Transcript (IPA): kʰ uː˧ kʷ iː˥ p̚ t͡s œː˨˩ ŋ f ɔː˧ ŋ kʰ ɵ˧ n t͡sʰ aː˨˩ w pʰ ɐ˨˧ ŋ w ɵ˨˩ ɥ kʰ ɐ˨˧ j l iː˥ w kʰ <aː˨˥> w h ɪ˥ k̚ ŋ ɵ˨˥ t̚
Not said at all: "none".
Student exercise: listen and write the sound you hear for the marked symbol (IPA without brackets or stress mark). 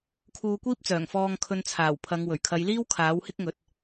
aː˨˥